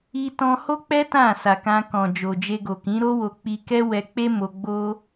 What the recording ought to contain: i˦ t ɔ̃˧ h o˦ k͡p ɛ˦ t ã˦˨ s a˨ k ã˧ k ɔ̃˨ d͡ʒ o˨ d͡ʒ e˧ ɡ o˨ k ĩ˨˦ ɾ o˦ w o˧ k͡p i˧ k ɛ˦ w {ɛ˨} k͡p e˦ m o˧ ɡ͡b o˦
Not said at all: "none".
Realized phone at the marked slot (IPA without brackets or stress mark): ɛ˧